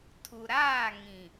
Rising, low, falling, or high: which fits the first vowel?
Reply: low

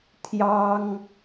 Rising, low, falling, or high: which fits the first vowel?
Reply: high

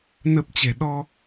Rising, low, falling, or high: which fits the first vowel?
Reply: low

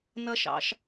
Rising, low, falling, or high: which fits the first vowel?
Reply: high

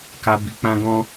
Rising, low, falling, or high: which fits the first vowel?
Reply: high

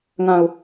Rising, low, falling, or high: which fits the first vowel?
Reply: low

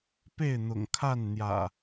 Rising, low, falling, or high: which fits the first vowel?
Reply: falling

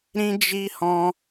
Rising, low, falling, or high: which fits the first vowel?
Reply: high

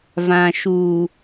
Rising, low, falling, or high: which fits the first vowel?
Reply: low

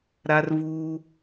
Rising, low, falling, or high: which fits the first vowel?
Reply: high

